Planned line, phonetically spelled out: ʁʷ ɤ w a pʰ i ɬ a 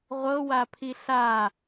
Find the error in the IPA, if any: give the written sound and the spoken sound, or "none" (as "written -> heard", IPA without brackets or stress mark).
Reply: none